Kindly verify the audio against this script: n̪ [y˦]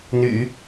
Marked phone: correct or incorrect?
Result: incorrect